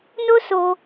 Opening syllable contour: high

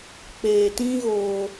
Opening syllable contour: low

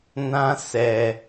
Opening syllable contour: high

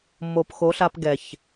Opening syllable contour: low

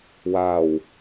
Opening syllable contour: low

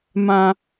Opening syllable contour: high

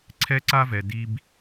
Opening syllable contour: high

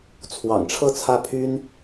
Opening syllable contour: low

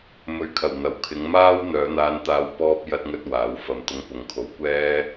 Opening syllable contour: low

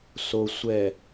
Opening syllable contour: low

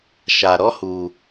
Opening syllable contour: low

